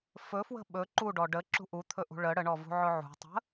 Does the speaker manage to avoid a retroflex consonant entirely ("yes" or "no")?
no